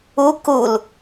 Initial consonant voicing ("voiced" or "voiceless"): voiceless